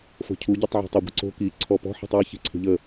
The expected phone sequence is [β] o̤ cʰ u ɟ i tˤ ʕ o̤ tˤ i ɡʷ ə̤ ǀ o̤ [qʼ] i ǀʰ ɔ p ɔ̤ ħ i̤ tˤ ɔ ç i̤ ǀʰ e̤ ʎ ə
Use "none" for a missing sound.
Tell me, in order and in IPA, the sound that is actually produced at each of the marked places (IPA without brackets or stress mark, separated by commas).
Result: f, k